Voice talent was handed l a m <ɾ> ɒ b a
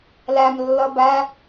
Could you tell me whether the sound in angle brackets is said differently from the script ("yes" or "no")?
yes